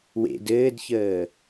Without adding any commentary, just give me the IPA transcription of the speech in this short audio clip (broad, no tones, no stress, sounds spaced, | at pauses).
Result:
w ḛ d ɘː d ç əː